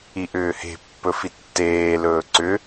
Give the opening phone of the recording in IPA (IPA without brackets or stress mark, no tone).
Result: i